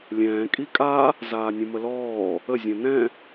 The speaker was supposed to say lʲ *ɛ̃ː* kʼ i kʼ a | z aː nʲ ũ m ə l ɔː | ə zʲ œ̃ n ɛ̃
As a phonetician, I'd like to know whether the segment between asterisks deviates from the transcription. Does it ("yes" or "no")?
no